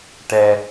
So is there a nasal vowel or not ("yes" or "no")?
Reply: no